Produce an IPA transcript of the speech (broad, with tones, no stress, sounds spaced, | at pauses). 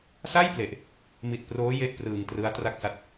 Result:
s a˥˩ j p l e˨˩ ʔ | m i˨˩ t̚ p r oː˦˥ j e˥˩ ʔ p r ɯː˨˩ ŋ t r ɯ˦˥ a̯ t r a˥˩ k̚ s a˦˥ t̚